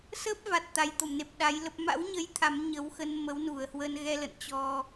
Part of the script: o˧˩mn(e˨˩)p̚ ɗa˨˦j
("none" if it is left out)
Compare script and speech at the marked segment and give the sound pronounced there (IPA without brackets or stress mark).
e˨˩